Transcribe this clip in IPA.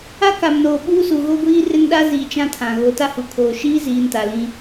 a˦ k a˨ m n oː˨ ɓ uː˦ s u˨ ɣ o˦ ɡʷ iː˦ r ɪ˦ n ɗ a˦ z iː˨ t͡ʃ ã˦ tʰ ã˨ ɣ o˨˦ t a˦ h u˨ kʰ oː˨ ʃ iː˦ z iː˨ n t a˨ l ĩ˦

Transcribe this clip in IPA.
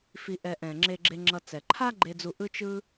f i˨ ʔ ɛ˨ ʔ ɛ̃˩ ŋ͡ǁ e˨ ɡ͡ǁ e˨ ŋ͡ǁ ʌ˨ t͡s ɛ˩ ǃʰ a˥ ɡ͡ǃ e˨ d͡z u˨ ʔ ɯ˦ t͡ʃ ɯ˦

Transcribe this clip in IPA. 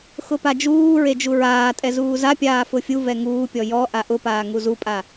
x ʊ p a d͡ʒ uː ɹ e d͡ʒ u ɹ aː tʼ ɛ z uː z a pʲ aː f ʊ fʲ u v ɛ ŋ uː pʲ ɔ j ɔ ʔ a ʔ ʊ p aː ŋ u z u pʼ a

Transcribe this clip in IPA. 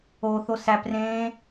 o θ o s æ p r ẽː

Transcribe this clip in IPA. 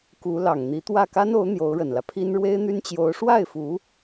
k u˧˥ l ɑ˨˩ ŋ n̪ i˧˥ t̪ w ä˥˩ k a˥ n o˧˥ ʊ̯ n̪ j o˧˥ ʊ̯ ɻ ə˨˩ n l ä˦ pʰ i˥ n ɻ w e˥ ɪ̯ n̪ y˥ n t͡ɕ j o˧˥ ʊ̯ ʂ w a˥˩ ɪ̯ f u˧˥

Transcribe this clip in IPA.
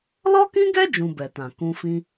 l ɔ˦ k ĩ˦ ɡ ɛ˦ d͡ʒ ũ˧ b ɛ˨ t ã˨ k ũ˧ f ĩ˦

